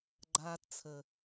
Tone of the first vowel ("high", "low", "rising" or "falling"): high